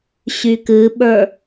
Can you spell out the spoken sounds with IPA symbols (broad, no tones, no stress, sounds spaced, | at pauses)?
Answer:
ɕ y k ɨ ɓ ə˞